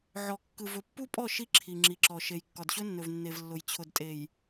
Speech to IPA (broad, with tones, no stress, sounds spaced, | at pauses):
ʕ ɔ˨ kː ɯ˨ v ɵ˨ pː u˦ pʼ ɔ˦˨ ʃ i˦ ǁʰ i˨ ŋ͡ǁ i˨ ǁ ɔ˨ ʃ e˨ j kː ɒ˨ d ɕ ɵ˦ nː ɵ˨ v nː e˨ v lː ʊ˨ j t͡ɕʰ ʊ˨ d tʼ e˨ j